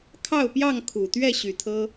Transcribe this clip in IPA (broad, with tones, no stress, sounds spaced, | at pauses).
kʰ ɑ˥˨ ʊ̯ p j ɑ˥˨ ŋ kʰ u˨˩ t̪ ɥ ɛ˥˨ ɕ y˨˩ t̪ʰ ɤ˦